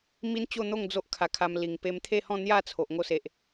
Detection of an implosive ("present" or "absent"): absent